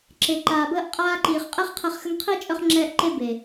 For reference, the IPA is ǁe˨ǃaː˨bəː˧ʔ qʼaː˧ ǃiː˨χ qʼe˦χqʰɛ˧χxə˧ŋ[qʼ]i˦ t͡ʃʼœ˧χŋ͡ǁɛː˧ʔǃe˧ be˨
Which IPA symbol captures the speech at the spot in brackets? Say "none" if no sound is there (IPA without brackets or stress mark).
qʰ